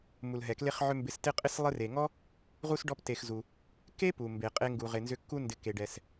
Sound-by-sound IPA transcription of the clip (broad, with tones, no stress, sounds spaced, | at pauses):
m u˩ l ɦ ɛ˩ k l e˦ χ ʕ ʏ˦ m b ɪ˨ s t ɪ˦ qʼ ɪ˦ s lˠ ɪ˦ r e˩ ŋ ɔ˥ | ʁ u˥ s ɖ ɔ˦ p t e˨ x z u˩ | k e˥ p u˩ m b e˩ qʼ e˦ ŋ ɡ u˨ ʁ ɪ˨ n z ʏ˦ kː u˥ n d ɪ˨ k e˩ ɖ ɛ˩ s